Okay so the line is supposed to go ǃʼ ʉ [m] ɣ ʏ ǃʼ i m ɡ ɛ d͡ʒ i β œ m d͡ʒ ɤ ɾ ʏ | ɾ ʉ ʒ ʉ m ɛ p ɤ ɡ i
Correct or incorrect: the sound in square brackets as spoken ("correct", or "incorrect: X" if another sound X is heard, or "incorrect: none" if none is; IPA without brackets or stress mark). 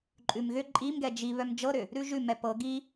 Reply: correct